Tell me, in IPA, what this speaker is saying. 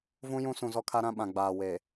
v ũ˦ j ũ˦ s ũ˨ z ɔ˦ kʰ a˦ ɾ ã˦ ɓ ã˨ ɡ͡b aː˨ w eː˨

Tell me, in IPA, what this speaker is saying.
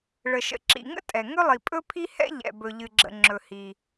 ɭ ə˩ ʃ ə̰˩ ǁ ḭ˩ ŋ ə̰˥ tʼ ɛ˩ ŋ ɵ˥ lˠ i˩ pʼ ɵ˥ pʰ i˥ h ɛ̰˥ ʎ ɛ̰˩ b ɵ˩ ʎ ɨ˩ ɡ͡ǁ ə̰˩ ŋ͡ǁ ɵ˩ h i˩

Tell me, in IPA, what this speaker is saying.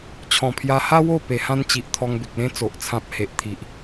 t͡ɕʰ ɔ̃˨˩ pʰ j a˧ h a˦ w o˥˧ p e˨˩ h ã˦ n t͡ɕ i˨ ʔ t̪ʰ ɔ˧ ŋ b e˨ k̚ l ẽ˦ t͡s o˨ ʔ t͡sʰ ã˦ p̚ h e˨ ʔ t̪ʰ i˨ ʔ

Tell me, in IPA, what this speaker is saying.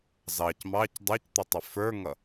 z ɑ c m ɑ c dˤ æ c t̪ ʊ tˤ ɪ f ə˞ ŋ ʌ

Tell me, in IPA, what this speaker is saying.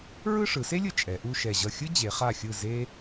ɹ ɯ˥˧ ʂ ɯ˩˧ s e˥ lʲ ɯ˧ t͡ʃʼ ɛ˩˧ ʔ u˥˧ ʃ ɛ˧˩ ʑ ʌ˧˩ xʲ ɯ˥ d͡ʑ e˩˧ χ a˧˩ xʲ ɯ˧˩ z e˧

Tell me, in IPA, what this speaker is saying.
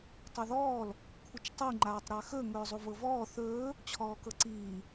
tˤ ɵ ð ɔː l | kʷʰ ə t͡ʃ tˤ i ŋ͡ǃ aː tˤ ɾ a x ɵ ŋ ɵː zˤ u v ɤ v ɔː θ ɵː | t͡ɕʰ ɔː k ɤ ǀ iː

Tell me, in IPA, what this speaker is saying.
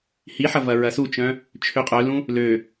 h i ħ ɐ v ɐ ɹ ɐ s u t͡ʃ œ̃ | t͡ʃʰ ø qʼ œ l ũ | l ø

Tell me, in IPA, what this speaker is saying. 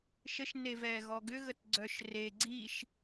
ʃ ə ʃ n e v ɛː ɣ ɔ ɡ ʏ ɣ ə t ɡ͡ǀ œ ʃ r e ɡ͡ǀ i ʃ

